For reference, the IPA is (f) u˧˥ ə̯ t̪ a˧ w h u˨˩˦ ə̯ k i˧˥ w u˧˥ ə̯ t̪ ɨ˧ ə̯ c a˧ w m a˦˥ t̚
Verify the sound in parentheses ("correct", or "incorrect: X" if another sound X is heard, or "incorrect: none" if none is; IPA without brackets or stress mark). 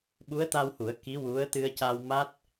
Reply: incorrect: ɓ